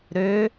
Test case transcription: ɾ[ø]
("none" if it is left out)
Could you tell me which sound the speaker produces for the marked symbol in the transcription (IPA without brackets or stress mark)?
ø